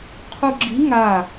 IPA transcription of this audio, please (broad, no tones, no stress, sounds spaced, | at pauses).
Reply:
qʰ u ɡ͡ǁ i ŋ a